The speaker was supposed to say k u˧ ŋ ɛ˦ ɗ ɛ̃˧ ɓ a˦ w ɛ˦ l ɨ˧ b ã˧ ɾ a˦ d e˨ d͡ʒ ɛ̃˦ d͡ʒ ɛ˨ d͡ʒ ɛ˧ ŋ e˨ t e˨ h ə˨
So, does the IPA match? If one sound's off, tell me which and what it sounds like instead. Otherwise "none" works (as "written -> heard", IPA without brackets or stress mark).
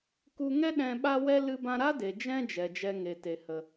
none